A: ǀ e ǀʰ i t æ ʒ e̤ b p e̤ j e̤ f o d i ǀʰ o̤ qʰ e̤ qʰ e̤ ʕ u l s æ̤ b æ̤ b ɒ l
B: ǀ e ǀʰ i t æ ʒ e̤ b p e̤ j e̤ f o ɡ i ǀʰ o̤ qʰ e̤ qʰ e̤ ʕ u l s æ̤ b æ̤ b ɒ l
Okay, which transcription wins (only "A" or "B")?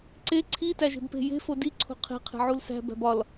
A